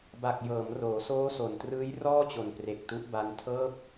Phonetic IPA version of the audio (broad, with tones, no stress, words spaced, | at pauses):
ba˨˩k̚jɤː˩˦m roː˩˦soː˦˥so˨˩ntrɯː˦˥j rɔː˥˩t͡ɕo˨˩npre˨˩k̚ tu˦˥ʔba˦˥n tʰɤː˥˩p̚